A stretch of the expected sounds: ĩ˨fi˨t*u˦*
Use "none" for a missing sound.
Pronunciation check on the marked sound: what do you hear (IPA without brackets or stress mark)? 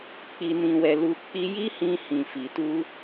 u˧